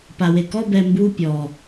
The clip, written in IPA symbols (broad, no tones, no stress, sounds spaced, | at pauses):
p a w e k ɔ b ɛ m b u pʲ ɔ